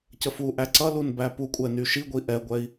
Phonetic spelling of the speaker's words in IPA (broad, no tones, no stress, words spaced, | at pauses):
cəfu ʔæǀʌlun bæpukʷʼɛny ʃiɡʷi ʔɛɡʷɛi̯